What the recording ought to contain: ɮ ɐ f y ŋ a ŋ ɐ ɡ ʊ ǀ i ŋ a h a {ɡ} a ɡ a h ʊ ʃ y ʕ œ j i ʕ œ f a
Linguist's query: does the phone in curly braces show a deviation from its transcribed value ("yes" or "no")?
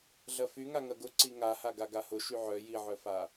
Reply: no